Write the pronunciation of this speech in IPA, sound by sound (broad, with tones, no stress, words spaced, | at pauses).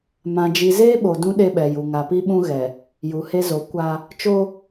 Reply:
mã˨d͡ʒi˨zeː˦ ɓo˨dũ˦ ɗe˦ɓɛ˨ju˨ ŋa˨pi˦ɓũ˦ ɣɛ˨ | ju˨he˦zo˨˦ kʷa˦ | t͡ʃo˦